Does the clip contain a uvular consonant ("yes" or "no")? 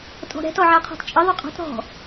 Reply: yes